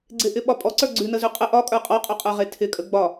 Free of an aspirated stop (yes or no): no